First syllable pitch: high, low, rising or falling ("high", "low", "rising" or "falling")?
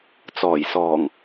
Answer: low